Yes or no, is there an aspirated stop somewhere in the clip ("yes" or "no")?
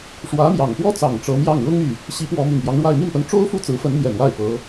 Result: no